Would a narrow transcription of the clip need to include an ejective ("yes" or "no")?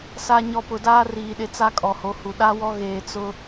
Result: yes